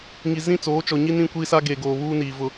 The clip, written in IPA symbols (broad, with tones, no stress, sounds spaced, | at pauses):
ŋ i˨ z ĩ˦˨ t͡s oː˨˦ t͡ʃ ɔ˨ ɲ i˦ n ĩ˦˨ kʷ iː˦ s a˦ ɡ e˨ ɡ oː˨ β uː˦ n iː˨ v ʊ˦